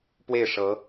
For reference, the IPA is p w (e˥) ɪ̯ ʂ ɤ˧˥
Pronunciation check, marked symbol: incorrect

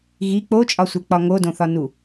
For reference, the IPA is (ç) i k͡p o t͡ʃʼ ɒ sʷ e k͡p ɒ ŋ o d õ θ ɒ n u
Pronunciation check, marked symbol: incorrect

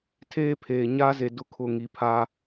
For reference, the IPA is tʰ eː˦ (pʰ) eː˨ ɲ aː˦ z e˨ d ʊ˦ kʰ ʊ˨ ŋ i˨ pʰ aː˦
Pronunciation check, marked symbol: correct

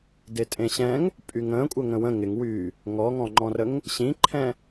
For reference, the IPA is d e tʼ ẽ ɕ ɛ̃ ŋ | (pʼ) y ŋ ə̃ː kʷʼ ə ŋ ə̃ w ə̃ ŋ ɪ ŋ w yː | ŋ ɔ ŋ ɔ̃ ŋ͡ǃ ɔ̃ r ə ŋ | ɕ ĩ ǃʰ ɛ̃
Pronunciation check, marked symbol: correct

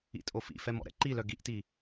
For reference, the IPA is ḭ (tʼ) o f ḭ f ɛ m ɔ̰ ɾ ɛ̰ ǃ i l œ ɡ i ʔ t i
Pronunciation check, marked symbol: correct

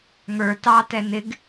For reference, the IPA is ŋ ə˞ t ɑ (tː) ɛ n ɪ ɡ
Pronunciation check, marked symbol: incorrect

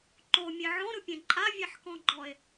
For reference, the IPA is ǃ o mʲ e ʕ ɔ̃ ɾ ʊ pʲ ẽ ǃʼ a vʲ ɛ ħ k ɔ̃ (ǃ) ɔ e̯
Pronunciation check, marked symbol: incorrect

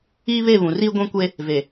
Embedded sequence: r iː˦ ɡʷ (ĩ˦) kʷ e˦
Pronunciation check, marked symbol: incorrect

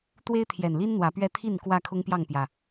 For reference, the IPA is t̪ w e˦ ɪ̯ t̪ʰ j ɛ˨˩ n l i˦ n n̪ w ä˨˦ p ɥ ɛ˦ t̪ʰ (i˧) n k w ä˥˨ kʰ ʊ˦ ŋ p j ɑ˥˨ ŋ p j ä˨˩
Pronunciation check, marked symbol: incorrect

